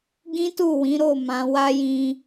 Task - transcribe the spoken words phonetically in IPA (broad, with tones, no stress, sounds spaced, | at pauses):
ɡ ĩ˦ t u˦˨ w ĩ˨˦ ɾ o˦˨ m ã˨˦ w a˦ j ĩ˧